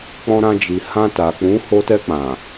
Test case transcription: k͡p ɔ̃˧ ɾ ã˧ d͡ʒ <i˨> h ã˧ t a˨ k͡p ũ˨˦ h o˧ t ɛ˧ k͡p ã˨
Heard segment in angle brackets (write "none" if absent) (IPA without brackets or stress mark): i˨